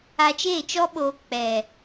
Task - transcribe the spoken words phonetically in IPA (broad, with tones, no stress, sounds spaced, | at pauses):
a˧ t͡ʃ eː˦˨ t͡ʃ ɔ˦ ɓ oː˧ k͡p ɛ˨